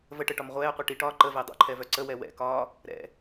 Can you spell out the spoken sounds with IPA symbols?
v ə ʈ ə ʈ ɒ m ʁʷ ɛː qʷ i ʈ i ʈ ɒː ǃ ə v ɛ dˤ o̰ ǃʰ ɛ v œ ǀ ə w ɛ w ɛ̰ k ɒː | ɾ ɛ̰

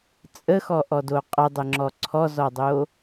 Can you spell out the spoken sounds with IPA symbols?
t͡sʼ ə x ɔ ʔ ɔ d o qʼ ə dˤ ə ŋ͡ǁ ɔ ǀʰ ɔ z ɔ dˤ o

